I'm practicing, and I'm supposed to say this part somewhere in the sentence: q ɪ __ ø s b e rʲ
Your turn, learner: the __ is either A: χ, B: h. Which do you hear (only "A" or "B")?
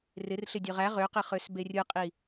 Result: A